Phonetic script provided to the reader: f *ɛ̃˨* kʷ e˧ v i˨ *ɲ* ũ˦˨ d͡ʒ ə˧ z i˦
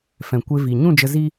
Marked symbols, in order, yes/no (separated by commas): yes, yes